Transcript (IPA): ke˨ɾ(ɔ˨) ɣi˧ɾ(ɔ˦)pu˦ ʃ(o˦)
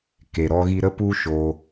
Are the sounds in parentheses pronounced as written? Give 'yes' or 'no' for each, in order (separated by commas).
no, no, yes